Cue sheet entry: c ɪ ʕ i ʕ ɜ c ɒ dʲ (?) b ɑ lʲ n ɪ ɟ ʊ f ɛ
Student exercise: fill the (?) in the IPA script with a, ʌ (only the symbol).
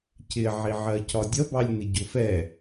ʌ